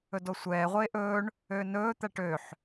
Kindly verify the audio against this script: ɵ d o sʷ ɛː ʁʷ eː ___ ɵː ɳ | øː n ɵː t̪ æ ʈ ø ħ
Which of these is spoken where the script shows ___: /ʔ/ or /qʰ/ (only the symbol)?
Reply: ʔ